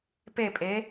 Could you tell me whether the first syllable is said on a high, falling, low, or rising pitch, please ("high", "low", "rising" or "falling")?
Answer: falling